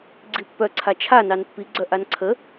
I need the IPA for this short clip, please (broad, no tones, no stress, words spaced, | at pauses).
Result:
ɡ͡ǀipːœ ǀʰat͡ʃʰanɑn pːiɡ͡ǀœ ʔanǀʰə